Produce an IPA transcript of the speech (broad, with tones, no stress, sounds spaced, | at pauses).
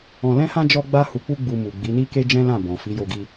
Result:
ɔ̃˧ l ɛ̃˦ h ã˦ d͡ʒ ɔ˦ ɡ͡b a˦ h u˧ k͡p u˦ ɡ͡b u˧ m u˨ ɡ͡b i˨˦ n i˦ k e˦ d͡ʒ ɛ̃˦ l ã˦˨ b ɔ̃˨ f i˨˦ j o˧ ɡ i˧